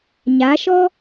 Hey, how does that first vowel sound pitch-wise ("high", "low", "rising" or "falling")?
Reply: rising